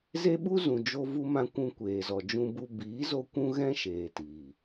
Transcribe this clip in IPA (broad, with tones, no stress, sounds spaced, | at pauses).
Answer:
z e˦ ɓ u˦ z ũ˨ d͡ʒ o˧ v u˧ m ã˧ kʷ ũ˧ kʷ eː˨ z ɔ˨ d͡ʒ ũ˧ b u˧ b iː˨˦ z o˧ kʷ ũ˦ ɣ ɛ̃˦ ʃ eː˨ t iː˨